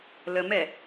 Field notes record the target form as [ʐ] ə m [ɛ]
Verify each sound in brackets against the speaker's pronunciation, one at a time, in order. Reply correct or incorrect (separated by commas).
incorrect, correct